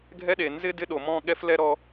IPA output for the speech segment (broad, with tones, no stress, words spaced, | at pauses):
ɡʱɛ˦ɗe˨ nzɪ˦ dɪ˦ɗo˨mɔ̃˦˨ ɠɛ˦flɛ˦ ɾɔ˧